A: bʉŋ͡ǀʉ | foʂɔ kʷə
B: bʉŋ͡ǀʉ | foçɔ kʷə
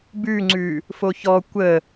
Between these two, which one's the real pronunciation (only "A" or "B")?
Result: B